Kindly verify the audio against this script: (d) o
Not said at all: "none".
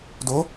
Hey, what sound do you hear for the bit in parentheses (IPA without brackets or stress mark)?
d